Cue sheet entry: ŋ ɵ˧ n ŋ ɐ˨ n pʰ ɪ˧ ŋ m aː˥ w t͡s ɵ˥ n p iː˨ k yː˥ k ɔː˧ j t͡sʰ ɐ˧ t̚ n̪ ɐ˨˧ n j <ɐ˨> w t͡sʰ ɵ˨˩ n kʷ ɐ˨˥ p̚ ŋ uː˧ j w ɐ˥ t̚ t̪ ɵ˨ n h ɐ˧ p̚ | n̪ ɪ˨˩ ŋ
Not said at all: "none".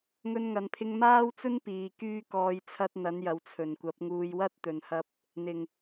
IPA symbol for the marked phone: ɐ˨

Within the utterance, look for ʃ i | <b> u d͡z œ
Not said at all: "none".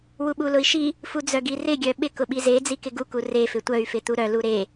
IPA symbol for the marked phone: f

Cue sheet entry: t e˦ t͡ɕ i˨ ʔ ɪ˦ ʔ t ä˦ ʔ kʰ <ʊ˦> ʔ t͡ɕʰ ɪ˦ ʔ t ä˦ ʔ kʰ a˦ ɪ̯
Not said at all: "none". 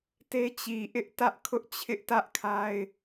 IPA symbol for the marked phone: ʊ˦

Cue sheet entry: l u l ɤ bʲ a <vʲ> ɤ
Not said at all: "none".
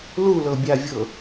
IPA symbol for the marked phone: vʲ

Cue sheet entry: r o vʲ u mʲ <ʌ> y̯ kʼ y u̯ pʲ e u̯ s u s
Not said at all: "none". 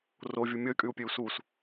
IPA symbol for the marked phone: ʌ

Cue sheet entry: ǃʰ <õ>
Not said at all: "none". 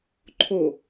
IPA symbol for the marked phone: o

